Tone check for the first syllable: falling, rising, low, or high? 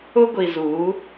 high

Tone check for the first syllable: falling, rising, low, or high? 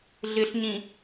low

